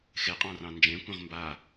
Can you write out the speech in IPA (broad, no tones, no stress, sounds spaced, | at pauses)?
x e qʼ ɑ̃ r ɑ̃ n d͡ʒ ẽ kʷ ẽ ʁ m b a